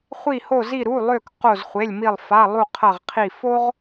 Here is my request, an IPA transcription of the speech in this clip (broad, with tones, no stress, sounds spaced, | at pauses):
χʷ i˧˩ h o˧˩ z i˧˩ ɾ u˩˧˩ lˠ ø˧˩ k q o˧˩ z χʷ e˩˧˩ lʲ m i˧˩ lˠ f a˩˧˩ lˠ u˧˩ qʰ ɐ˧˩ ʁ qʰ i˧˩ f o˦ ʁ